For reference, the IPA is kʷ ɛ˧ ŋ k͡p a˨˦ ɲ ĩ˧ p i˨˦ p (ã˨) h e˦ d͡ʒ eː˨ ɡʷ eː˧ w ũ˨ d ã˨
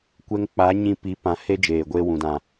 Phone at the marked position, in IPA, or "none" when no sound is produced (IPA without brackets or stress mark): ã˨˦